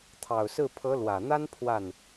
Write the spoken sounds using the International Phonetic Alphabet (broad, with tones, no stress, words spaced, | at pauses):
t̪ʰɑ˨˩ʊ̯sɹ̩˥˩ pʰɤ˧˥lwä˨˩n̪a˥n pʰwa˥˩n